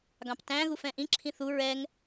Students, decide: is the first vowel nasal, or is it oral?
nasal